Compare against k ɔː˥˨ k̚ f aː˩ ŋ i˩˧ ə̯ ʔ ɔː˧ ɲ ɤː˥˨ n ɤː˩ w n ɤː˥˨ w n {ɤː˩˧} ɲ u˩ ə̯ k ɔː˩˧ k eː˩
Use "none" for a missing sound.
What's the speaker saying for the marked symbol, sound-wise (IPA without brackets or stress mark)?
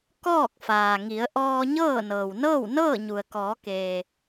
ɤː˥˨